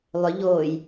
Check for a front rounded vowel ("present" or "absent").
present